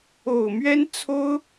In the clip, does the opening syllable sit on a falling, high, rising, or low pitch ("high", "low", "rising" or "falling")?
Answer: low